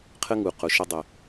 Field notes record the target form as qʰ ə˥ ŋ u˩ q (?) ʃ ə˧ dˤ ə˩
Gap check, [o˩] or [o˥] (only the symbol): o˩